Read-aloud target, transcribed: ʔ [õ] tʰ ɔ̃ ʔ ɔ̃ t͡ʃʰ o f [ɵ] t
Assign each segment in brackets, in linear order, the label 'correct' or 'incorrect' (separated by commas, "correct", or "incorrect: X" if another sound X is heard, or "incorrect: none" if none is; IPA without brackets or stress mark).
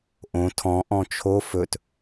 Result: correct, correct